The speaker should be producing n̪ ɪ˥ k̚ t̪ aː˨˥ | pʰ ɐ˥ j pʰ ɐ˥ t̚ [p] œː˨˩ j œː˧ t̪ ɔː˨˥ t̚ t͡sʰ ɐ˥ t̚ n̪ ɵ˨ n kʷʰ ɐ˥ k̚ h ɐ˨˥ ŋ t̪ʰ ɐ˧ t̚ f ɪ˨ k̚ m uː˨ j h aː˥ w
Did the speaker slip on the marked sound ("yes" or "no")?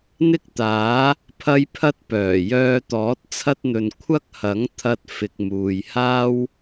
no